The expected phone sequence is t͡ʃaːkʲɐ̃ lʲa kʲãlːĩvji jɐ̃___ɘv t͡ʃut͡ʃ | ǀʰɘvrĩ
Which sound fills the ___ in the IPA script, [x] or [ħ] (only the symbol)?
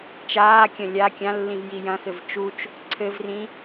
x